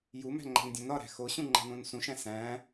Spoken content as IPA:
j u m æ̤ ŋ͡ǃ æ̤ n dʲ õ n ɒ ɾ æ̤ x o ɕ ũ ŋ͡ǃ æ̤ n õ n s ũ ʃ æ̃ s æ̃

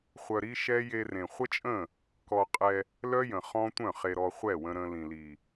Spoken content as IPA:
χʷ œ˧ ɾ i˦ ʃ ɛ˦ j e˧ r ẽ˨ χʷ ə˦ t͡ʃʼ ə̃˦˨ | k ɔ˧ qʼ ɛ˧ | l œ˦ j ə̃˨ χ ɔ̃˦ tʷ œ̃˦˨ χ e˨ ɾ ɔ˨ χʷ ɛ˦˨ w ə̃˧ ɾ ə̃˧ l ĩ˨ l i˨

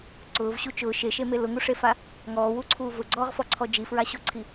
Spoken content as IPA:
ǀ ʊː v ɕ u t͡ʃ ʊː ʃ e ʃ e m e l ʊ ŋ u ʂ e f a | ŋ ɔː w u ǀʰ uː v ʊ ɡ͡ǀ ɔː ʁ f ɔ ǀʰ ɔ d͡ʒ i f ɹ a ɕ o ǀʰ i

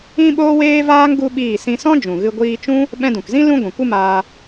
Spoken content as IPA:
ĩ˦ ɓ oː˦ w eː˦ v aː˦ ŋ ɡ u˦ ɓ iː˦˨ s ĩ˧ s ɔ̃˦ d͡ʒ ũ˨ ɣ ɨ˧ ɡʷ iː˧ t͡ʃ ũ˦ | ɓ ɛ̃˧ d ũ˨ k z ĩ˦ l ũ˦ ɡʷ ɛ̃˨ kʷ ɨ˦ m aː˧

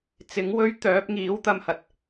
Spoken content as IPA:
t͡s ɪ˨˥ ŋ w ɵ˥ ɥ t̪ œː˨˥ p̚ ŋ iː˨˥ w t̪ ɐ˧ m h ɐ˨ t̚

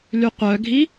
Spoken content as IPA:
l y qʷ œ ɡʱ i

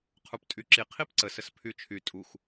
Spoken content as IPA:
qʰ u p tʼ y ǁ i qʰ i p ǀ ə s ə s pʰ y t͡ʃʰ y tʼ u x

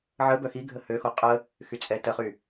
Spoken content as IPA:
ʕ ə b œ x i ɡʱ ə h ø x o qʼ ə | x y t͡sʼ ɛ t ə χ y

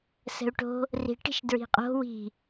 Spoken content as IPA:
s ə̤ u̯ ʈ o̤ | r i̤ ʈ i̤ ʃ d ɹ i̤ qʼ o̤ w i̤

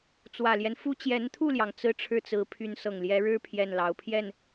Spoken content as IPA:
t͡s w ä˨˩ l j ɛ˦ n f u˥ t͡ɕ j ɛ˧˥ n t̪ʰ u˥˩ l j ɑ˩ ŋ t͡s ɹ̩˥˧ ʈ͡ʂʰ ɻ̩˥˩ t͡s ɹ̩˧˥ pʰ y˧˥ n s ɤ˨˩ ŋ l j ɛ˧˥ ɻ ɻ̩˥ pʰ j ɛ˥˩ n l ɑ˧˥ ʊ̯ pʰ j ɛ˥˩ n

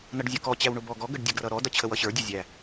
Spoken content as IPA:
n ʌ ɖ zʲ ʊ k ɔ t͡ɕ æ w ɳ ʊ b ɔ ɡ ɔ ɡ ə ɖ dʲ ə ɡ r ʌ ɾ ɔ d ʌ t͡ɕʰ ə w ʌ ɕ ə˞ dʲ ə zʲ æ

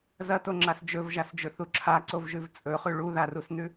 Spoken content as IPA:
z ɐ t o ŋ͡ǁ a s d͡ʒ ɵ v ʒ a s d͡ʒ ɵ θ u ǁʰ a ǀ o v ʒ ʉ v t͡sʼ ɵ χ ʉ ɭ u ð a r u s n ʉ

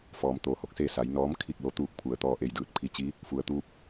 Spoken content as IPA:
f ɔː˩˧ m t̪ oː˩ h o˥˨ k̚ s eː˥˨ s a˩˧ j n ɔː˧˥ m kʰ i˥˨ k̚ l o˧˥ t̪ uː˥˨ k̚ pʰ u˧˩ ə̯ t̪ ɔː˥˨ ʔ e˥˨ j d ɯː˥˨ t̚ pʰ i˧˥ t͡ɕ i˧˥ | f u˩˧ ə̯ t̪ uː˧˥ p̚

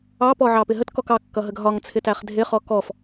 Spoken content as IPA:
ɑ p ɔ ʕ ɑ p ɪ ɦ ə t k ɔ k ɑ kː ʌ ɦ ə ɡ ɦ ɒ ŋ t͡sʰ ɪ t æ χ dʱ ɪ χ ɔ k ɔ f

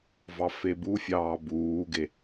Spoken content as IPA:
v ɑ f e b u fʲ ɑː b uː ɡ e

